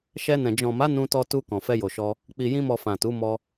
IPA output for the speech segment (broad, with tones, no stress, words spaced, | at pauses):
ʃɛ˧nɛ̃˨ d͡ʒɔ̃˨ma˨˦ nũ˧tɔ˧tu˧ kɔ̃˨fɛ˧jo˨ʃɔ˧ | k͡pi˨jĩ˧mɔ˨ fã˨tu˨˦ mɔ˧